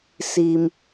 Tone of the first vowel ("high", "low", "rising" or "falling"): low